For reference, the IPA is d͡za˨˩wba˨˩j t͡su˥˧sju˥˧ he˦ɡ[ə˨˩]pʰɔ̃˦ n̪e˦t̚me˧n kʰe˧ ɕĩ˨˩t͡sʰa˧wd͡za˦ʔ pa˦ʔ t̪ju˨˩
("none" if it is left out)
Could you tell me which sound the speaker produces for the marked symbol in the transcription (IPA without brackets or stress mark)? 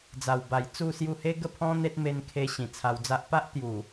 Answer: ə˥˧